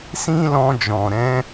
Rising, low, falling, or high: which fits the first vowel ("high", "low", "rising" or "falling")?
high